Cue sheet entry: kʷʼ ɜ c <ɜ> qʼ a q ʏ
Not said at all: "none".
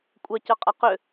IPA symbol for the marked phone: ɜ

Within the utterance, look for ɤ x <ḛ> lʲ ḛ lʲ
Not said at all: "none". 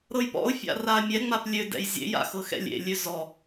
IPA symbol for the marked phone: ɛ̰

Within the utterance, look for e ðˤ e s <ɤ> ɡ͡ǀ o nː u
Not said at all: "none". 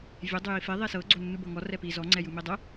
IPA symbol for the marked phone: ɤ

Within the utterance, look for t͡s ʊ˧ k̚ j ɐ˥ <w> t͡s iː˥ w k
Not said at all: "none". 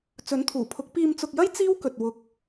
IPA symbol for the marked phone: j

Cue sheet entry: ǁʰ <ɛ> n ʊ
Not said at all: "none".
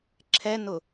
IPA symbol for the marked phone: ɛ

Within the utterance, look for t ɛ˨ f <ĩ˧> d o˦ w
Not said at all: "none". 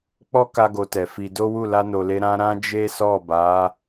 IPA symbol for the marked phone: i˧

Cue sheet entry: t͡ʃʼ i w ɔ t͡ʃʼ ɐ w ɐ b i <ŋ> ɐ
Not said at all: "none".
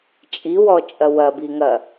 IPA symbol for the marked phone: ŋ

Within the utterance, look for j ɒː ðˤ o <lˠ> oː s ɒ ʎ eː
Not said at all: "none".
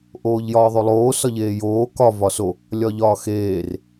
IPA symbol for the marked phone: lˠ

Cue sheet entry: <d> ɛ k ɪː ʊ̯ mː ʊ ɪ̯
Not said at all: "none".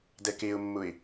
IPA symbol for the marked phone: d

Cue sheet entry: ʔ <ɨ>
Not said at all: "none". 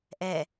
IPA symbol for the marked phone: ɛ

